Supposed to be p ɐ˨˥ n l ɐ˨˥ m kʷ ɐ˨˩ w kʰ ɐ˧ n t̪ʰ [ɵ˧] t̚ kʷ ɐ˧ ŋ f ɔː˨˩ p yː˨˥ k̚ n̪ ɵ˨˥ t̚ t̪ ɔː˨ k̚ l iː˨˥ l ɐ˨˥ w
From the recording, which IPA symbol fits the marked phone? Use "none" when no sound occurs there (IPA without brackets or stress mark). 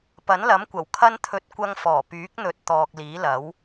ɵ˨˥